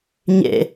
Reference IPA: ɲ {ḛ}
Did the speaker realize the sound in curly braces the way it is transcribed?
yes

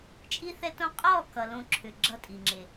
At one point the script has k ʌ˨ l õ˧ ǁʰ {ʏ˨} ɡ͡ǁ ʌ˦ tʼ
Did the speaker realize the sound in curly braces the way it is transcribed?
yes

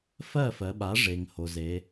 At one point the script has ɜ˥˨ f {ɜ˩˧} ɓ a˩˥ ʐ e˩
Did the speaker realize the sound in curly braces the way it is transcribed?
yes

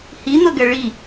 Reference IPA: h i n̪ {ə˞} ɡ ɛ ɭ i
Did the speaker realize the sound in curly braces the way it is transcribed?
no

